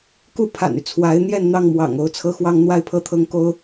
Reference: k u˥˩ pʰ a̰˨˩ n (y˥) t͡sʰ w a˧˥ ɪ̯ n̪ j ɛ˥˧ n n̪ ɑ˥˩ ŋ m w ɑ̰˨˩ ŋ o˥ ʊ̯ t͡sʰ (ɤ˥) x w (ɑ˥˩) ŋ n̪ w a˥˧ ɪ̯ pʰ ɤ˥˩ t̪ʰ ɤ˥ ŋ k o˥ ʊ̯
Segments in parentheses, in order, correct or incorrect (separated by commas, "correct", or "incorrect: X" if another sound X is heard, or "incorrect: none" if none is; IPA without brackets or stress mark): incorrect: y˦, correct, incorrect: ɑ˥